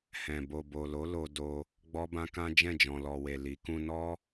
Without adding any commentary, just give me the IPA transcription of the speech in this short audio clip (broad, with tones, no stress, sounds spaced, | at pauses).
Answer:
h ɛ̃˨ b o˨ b o˨ l o˨˦ l o˧ d o˧ | ɡ͡b ɔ˦ b ã˦ k ã˦ d͡ʒ ɛ̃˦˨ d͡ʒ ɔ̃˨ l ɔ˨ w e˨ l i˨˦ k ũ˧ n ɔ˦